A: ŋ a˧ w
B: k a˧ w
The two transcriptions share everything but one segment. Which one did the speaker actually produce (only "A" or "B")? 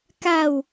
B